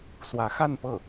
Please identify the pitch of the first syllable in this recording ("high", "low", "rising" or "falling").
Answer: rising